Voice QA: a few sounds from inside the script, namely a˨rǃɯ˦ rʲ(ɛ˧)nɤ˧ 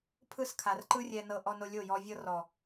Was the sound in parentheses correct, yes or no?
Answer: yes